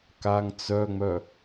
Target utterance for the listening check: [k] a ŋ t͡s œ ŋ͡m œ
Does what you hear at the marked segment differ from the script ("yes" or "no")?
no